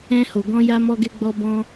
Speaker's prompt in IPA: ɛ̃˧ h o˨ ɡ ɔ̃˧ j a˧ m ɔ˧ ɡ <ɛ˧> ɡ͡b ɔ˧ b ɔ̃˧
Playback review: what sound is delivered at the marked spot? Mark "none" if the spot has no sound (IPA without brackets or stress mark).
ɛ˧